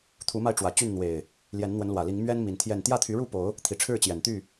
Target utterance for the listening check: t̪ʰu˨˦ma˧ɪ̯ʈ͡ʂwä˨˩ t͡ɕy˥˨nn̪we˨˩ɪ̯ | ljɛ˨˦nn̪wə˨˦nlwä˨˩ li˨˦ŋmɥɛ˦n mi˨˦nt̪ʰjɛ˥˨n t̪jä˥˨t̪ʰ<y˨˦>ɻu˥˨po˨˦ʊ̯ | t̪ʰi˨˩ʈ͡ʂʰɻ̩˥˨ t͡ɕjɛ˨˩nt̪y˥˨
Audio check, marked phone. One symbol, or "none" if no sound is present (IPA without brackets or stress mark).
y˨˦